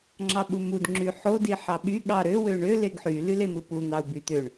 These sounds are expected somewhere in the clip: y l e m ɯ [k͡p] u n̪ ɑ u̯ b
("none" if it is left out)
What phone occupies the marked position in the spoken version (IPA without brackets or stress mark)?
p